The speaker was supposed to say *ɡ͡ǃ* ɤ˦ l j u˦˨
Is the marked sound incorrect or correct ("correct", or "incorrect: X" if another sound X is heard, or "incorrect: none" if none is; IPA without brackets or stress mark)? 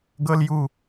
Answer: incorrect: ɡ